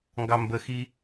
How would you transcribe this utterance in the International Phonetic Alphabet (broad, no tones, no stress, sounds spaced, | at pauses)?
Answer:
ŋ ɡ ɑ m b ə x i